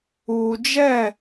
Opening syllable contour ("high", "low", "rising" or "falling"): low